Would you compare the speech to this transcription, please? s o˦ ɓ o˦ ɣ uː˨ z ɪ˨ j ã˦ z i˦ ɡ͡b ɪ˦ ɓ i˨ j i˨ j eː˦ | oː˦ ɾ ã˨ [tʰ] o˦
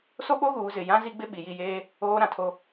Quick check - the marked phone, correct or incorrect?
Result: correct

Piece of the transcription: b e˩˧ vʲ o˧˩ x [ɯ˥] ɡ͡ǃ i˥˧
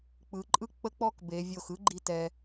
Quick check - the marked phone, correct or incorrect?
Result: correct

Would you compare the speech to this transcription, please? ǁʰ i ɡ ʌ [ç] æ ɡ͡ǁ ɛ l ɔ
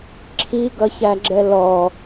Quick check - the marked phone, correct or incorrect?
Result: correct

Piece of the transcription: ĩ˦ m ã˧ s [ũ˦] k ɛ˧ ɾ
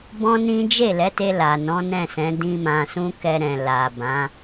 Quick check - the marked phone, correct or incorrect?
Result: correct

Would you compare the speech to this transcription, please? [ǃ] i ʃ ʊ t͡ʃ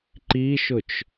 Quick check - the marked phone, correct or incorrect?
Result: correct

